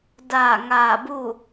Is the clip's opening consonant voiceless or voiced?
voiced